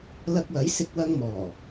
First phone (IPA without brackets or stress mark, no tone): l